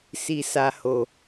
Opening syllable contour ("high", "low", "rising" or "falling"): low